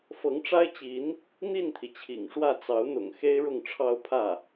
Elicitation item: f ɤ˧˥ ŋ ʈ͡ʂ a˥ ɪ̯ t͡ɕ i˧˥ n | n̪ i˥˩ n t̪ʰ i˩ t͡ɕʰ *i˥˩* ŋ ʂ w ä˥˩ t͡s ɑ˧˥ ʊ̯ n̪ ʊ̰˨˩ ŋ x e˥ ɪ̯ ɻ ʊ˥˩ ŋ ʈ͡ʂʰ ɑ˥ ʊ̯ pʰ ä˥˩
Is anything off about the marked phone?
yes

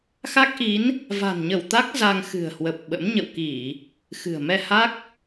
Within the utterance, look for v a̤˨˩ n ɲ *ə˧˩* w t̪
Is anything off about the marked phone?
no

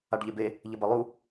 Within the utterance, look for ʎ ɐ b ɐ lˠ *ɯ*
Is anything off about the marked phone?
yes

